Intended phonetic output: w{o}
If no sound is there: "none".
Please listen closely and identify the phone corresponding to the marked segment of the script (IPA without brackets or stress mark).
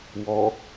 ɔ